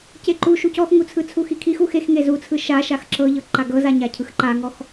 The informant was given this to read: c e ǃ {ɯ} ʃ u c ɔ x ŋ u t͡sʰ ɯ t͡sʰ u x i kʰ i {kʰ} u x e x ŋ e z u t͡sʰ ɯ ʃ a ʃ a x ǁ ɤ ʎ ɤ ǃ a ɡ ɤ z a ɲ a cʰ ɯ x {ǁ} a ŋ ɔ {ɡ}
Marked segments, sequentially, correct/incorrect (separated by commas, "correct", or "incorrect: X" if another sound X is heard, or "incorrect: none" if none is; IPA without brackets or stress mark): incorrect: u, incorrect: x, incorrect: ǃ, incorrect: x